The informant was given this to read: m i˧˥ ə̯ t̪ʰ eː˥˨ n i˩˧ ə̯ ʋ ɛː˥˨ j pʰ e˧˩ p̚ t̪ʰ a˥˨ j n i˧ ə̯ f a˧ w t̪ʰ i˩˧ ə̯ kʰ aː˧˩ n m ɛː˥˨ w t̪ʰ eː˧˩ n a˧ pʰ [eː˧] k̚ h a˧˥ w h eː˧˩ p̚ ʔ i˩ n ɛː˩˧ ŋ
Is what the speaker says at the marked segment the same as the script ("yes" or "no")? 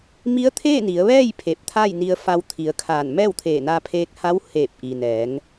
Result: yes